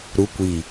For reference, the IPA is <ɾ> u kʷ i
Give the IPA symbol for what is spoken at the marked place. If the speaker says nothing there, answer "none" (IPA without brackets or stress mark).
ɾ